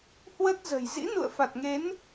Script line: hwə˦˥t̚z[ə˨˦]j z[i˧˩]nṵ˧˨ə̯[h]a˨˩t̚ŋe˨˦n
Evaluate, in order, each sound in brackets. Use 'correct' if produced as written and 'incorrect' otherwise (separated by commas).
incorrect, incorrect, incorrect